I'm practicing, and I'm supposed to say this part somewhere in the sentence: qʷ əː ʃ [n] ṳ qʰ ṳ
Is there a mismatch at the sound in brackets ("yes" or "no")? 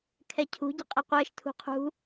yes